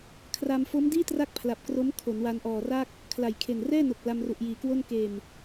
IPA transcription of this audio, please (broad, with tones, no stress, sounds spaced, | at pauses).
kʰ r a˧ m f o˦˥ m d iː˥˩ t r a˦˥ k̚ pʰ l a˨˩ p̚ k r o˦˥ m kʰ o˩˦ n w a˧ n ʔ ɔː˨˩ r a˥˩ k̚ | kʰ l a˨˩ j kʰ e˨˩ n r ɛː˥˩ n o˨˩ k̚ l a˧ m r u˨˩ ʔ j iː˩˦ k w o˥˩ n k eː˨˩ m